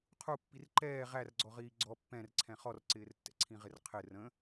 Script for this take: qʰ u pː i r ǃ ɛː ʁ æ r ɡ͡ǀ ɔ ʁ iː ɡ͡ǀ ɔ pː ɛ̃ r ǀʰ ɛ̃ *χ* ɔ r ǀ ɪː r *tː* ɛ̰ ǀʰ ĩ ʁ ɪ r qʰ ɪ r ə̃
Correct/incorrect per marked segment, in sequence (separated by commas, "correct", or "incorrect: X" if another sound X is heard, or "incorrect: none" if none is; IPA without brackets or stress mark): correct, correct